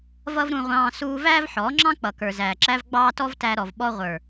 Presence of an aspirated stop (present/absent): absent